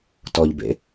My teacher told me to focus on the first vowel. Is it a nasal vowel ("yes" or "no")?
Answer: no